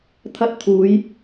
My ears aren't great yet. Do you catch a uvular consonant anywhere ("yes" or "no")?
no